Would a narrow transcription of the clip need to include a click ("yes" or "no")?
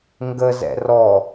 no